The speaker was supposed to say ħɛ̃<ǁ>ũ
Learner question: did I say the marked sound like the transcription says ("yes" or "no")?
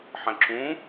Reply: yes